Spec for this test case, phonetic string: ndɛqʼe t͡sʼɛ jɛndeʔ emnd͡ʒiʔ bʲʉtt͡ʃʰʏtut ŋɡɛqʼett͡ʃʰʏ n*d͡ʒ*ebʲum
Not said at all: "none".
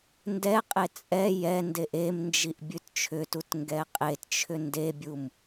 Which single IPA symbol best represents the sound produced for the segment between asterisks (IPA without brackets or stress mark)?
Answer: d